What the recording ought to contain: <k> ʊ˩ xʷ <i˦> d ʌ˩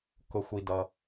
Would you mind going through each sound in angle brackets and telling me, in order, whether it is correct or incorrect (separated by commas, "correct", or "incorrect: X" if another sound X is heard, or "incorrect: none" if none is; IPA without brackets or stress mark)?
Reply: correct, incorrect: i˩